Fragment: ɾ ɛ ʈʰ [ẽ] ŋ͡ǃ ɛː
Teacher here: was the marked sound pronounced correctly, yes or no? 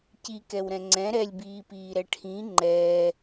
no